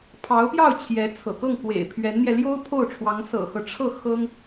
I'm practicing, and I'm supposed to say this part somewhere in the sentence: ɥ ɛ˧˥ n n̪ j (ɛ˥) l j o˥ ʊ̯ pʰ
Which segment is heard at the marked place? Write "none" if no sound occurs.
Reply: ɛ˧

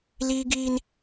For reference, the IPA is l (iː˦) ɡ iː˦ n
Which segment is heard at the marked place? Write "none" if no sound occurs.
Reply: iː˦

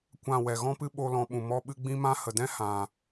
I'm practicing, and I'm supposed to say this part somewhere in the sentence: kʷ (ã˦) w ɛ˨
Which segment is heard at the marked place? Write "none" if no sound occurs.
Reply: ã˦˨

